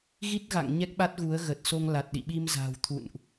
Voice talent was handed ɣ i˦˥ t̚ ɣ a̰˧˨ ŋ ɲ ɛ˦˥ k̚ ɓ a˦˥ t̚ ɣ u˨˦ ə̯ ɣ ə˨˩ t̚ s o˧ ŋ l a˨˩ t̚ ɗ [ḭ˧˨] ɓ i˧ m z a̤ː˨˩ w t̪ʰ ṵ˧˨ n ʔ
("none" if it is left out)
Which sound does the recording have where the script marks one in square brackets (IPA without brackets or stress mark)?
ḭ˧˨